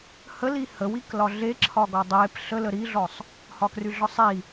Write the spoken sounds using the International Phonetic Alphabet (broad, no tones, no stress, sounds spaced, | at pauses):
h ə l i h ə w i k l ɒ ɮ e ǁʰ ɒ ɡ ɒ dˤ e p ɬ ə l ə ɾ i ɮ ɔ sˤ | h ɒ k r y ɮ ɒ sˤ i